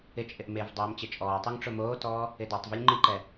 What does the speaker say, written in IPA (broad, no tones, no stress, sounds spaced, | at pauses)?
ɪ t͡ʃʼ ɪ ʔ m e v dˤ oː m t͡ɕ e t͡ʃʼ ɔː tˤ u ŋ ʈ͡ʂ ʊ m oː t ɔː | ɪ d ɔ tˤ v u lʲ ŋ͡ǃ i ǃ ɛ